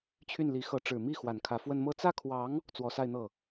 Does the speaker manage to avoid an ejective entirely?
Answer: yes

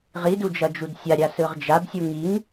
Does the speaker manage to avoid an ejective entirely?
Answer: yes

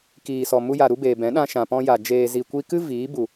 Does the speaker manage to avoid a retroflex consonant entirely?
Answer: yes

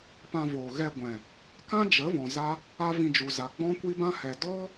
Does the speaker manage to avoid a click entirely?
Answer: yes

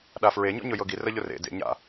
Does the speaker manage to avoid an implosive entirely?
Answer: no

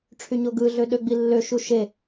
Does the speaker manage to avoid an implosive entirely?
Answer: no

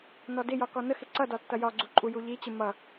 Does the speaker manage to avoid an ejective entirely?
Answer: no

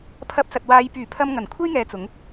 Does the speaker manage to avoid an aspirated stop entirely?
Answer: no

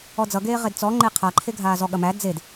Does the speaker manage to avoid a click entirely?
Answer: no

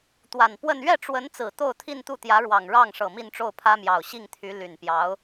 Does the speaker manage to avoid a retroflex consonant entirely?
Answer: no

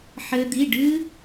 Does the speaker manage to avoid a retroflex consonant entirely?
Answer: no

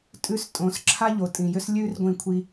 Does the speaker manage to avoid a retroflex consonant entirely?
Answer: yes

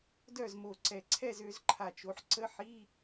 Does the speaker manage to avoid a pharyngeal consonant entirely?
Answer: no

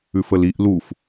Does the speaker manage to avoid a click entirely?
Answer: yes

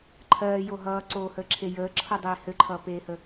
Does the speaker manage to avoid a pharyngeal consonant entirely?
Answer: yes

